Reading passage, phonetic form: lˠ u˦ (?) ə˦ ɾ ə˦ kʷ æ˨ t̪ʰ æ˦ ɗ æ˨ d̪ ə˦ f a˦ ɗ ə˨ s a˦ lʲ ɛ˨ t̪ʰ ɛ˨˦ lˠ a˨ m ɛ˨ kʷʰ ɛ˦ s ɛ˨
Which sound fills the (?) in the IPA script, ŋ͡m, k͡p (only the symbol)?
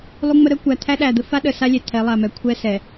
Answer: ŋ͡m